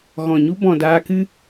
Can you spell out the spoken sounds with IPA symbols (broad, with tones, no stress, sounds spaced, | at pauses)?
ɣ ɔ̃˨ ɲ u˦ b ɔ̃˨ d aː˧ k ɨ˦